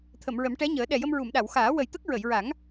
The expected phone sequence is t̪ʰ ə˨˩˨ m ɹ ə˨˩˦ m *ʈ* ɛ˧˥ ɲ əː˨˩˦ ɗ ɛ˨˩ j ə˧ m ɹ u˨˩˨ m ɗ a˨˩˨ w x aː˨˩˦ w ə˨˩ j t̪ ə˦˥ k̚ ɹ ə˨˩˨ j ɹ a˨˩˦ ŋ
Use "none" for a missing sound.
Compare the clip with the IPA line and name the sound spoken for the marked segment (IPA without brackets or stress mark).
ʈ